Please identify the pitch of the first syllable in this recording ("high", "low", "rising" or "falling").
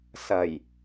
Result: low